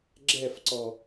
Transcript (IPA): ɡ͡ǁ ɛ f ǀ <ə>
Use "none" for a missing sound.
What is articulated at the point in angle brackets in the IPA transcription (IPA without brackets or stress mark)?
ɔ